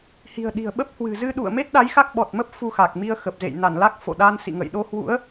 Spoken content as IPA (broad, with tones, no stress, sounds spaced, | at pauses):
h i̤˨˩ ə̯ ɗ i̤˨˩ ə̯ ɓ ə˦˥ p̚ h w ɨ̤˨˩ z ɨ˧ ɗ ṵ˧˨ ə̯ m e˦˥ t̚ ɗ a˨˦ j x a˦˥ k̚ ɓ ɔ˨˩ t̚ m ə˦˥ p̚ f u˧ x a˨˩ k̚ m i˧ ə̯ x ə˨˩ p̚ z ḛ˧˨ j n a˧˩ n l a˦˥ k̚ f o̰˧˨ ɗ a˧ n s ḭ˧˨ ŋ ə̰˧˨ j ɗ o˧ h w ṵ˧˥ ə̯